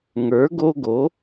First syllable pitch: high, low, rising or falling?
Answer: rising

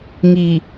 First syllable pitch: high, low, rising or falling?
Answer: low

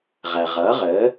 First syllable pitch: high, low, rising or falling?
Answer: low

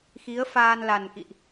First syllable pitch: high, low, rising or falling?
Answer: rising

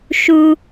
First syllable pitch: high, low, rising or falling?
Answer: high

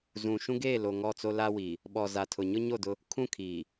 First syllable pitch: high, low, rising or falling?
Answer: low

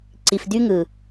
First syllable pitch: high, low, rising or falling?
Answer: low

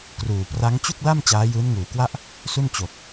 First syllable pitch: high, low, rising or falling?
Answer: low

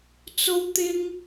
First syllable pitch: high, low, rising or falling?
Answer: high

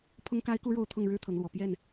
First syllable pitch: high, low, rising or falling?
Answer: high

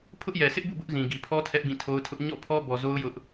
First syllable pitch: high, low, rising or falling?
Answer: high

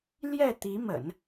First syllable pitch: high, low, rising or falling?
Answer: falling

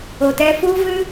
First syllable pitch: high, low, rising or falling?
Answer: low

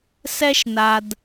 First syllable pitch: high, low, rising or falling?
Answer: high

